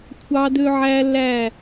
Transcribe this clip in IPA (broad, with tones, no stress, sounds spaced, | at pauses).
kʷʰ ɑ˧ d ø˧ ʕ æ˧ l æ˦˨